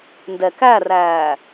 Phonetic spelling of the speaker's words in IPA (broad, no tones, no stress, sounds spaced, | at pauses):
n d ɛ k æ r æː